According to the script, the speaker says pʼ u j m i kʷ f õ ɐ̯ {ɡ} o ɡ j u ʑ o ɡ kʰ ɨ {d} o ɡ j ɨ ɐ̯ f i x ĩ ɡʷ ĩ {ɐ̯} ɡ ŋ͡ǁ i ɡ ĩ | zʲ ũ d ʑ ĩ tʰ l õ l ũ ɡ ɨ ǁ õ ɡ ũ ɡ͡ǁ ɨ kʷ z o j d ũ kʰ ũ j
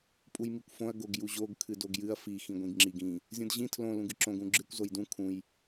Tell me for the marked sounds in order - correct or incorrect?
correct, correct, incorrect: none

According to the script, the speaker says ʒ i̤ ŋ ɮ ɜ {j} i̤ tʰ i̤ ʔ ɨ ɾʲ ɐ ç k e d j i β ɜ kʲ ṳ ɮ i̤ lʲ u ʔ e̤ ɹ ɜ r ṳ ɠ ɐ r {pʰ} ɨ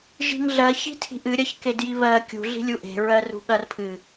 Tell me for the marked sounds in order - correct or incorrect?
incorrect: ç, correct

